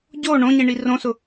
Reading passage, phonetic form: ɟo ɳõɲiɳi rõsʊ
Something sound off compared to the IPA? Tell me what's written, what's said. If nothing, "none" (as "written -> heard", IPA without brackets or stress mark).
none